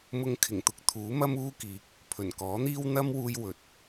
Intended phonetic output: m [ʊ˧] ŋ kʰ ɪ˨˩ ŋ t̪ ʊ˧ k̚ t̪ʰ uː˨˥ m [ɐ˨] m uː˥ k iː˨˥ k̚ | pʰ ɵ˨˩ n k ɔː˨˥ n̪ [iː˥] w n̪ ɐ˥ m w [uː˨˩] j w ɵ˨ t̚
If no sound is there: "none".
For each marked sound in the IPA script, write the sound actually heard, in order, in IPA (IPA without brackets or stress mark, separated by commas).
ʊ˧, ɐ˥, iː˥, uː˧